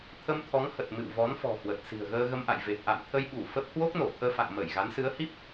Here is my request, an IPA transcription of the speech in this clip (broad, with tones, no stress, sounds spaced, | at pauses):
t̪ʰ ə˧ m t̪ʰ ɔ˨˦ ŋ h ə˨˩ t̚ m ɨ̰˧˨ w v ɔ˨˦ n f ɔ̤˨˩ h w ə˨˩ t̚ s i̤˨˩ ə̯ ɣ əː˧ ɣ ə˧ m ʔ a̰˧˨ j v e˨˩ p̚ ʔ a̰˧˨ m t̪ʰ ə˧ j ɓ u˧˩ f ə˦˥ p̚ h w o˦˥ k̚ n o˧˩ t̪ʰ əː˧ f a̰˧˨ ŋ m ə˧˩ j ɣ a˨˦ n s ɨ˨˦ ə̯ h i˦˥ p̚